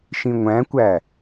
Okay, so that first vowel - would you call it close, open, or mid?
close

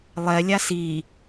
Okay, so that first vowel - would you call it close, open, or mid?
mid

